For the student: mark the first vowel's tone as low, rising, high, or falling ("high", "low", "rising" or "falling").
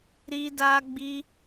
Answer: high